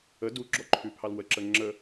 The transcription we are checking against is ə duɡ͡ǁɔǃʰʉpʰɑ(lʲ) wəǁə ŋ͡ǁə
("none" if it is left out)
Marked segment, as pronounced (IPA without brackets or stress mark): l